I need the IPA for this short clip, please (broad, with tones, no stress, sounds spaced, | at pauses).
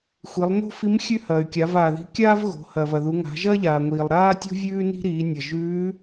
xʷ i˩˧ lˠ n o̤˥ f i˧˥ m xʲ ʉ˥ h ɐː˩ y̯ kʲ a˩˧ v aː˩ ð i̤˧˥ kʲ aː˥ v ɣ o̤˩˧ h ɐː˩ v ɐ˩ ð u˩˧ ŋ a̤˩˧ ʒ ɐː˥ ʎ aː˩ ŋʷ iː˩ lˠ ɾ aː˥ tʲ o̤˥ vʲ ʉː˥ n i̤˥ ɾ iː˩˧ nʲ ɐ˩ ʒ ʉː˧˥